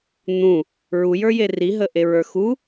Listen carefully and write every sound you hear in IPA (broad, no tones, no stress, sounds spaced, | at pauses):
n̪ ũ | ɹ u j ə˞ j e r i ɦ ə ʔ e ɹ ə˞ x u